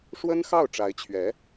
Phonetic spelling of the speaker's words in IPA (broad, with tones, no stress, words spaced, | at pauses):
ʂwə˥nxɑ˥˩ʊ̯ʈ͡ʂa˧˥ɪ̯t͡ɕʰɥɛ˧˥